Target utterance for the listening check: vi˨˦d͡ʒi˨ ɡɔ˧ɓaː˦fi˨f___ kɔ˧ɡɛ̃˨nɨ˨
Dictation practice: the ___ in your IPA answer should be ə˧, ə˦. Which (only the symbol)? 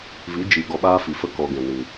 ə˦